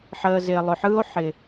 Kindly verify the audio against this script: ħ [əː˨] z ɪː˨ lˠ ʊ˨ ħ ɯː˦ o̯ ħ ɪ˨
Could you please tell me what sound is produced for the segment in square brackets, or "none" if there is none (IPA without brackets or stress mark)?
əː˨